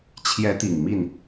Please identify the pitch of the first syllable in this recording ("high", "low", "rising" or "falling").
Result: rising